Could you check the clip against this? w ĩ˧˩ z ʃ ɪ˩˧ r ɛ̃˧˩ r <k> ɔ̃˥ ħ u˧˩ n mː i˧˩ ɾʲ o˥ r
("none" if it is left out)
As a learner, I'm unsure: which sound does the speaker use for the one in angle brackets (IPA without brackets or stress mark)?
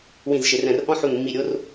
ʔ